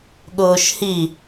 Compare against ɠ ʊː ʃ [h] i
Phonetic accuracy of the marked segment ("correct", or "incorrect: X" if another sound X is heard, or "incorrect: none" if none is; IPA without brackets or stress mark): correct